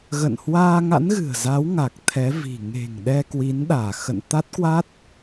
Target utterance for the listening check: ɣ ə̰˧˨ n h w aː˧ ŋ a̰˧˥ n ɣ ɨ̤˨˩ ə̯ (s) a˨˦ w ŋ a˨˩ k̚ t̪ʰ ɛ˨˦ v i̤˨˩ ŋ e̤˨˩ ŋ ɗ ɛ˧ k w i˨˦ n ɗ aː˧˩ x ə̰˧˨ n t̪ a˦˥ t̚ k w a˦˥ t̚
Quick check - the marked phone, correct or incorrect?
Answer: incorrect